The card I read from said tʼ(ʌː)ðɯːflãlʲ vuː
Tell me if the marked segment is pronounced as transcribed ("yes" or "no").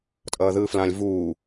yes